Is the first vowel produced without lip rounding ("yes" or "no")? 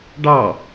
yes